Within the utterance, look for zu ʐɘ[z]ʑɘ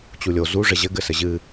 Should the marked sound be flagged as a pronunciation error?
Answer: yes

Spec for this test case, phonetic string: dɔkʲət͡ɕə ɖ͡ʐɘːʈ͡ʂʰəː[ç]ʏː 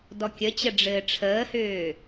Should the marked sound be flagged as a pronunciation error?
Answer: yes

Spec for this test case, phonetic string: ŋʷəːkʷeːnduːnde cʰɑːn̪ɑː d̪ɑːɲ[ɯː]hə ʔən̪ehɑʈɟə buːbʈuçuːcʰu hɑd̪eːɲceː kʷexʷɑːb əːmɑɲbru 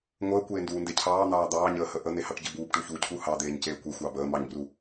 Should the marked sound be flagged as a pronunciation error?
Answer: yes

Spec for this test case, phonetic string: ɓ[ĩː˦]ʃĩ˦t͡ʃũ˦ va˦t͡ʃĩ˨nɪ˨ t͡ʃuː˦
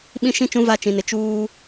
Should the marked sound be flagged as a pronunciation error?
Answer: yes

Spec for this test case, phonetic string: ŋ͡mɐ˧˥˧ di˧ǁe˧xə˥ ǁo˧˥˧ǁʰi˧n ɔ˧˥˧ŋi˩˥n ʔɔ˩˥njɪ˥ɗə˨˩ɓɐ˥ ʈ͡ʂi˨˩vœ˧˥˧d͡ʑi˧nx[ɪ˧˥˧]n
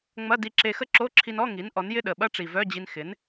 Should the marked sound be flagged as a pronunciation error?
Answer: yes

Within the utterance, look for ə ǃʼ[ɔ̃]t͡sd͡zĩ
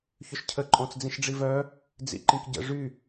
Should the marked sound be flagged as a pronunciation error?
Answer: no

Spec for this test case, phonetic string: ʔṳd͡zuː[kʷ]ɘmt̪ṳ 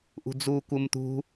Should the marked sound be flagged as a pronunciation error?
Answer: no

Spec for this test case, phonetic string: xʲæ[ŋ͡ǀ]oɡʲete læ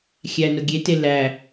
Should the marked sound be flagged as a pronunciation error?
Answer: yes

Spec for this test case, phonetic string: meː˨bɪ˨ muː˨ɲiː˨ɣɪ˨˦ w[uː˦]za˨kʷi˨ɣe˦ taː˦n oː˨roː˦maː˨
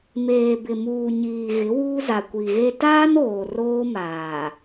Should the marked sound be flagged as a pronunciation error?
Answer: no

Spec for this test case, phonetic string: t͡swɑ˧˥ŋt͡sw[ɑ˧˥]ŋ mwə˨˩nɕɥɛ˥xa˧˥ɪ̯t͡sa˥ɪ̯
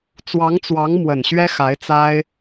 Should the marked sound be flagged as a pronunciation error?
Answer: no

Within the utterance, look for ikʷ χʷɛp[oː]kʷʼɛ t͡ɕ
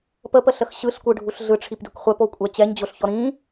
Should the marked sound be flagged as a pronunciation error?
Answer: yes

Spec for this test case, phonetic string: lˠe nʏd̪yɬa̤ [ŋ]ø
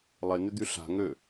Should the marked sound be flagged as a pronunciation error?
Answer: no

